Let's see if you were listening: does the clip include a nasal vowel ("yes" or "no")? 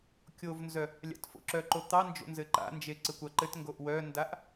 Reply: no